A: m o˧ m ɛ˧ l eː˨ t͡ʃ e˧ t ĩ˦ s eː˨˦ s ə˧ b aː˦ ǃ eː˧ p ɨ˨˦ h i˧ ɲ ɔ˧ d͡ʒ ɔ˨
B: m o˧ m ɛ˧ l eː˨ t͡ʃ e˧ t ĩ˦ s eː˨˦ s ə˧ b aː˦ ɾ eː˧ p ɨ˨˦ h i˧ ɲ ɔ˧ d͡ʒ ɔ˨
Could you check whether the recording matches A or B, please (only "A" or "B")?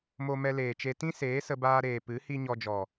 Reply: B